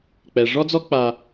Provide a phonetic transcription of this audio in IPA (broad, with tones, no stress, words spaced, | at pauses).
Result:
k͡pɛ˩ʐɔ˥d͡zɔ˥ k͡pa˨